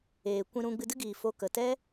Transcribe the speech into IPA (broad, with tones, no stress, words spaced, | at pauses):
eː˨ kʷĩ˧ɾũ˧ ɡ͡bɨ˧dɨ˦ɡiː˨ fo˨˦kə˨tɛ˦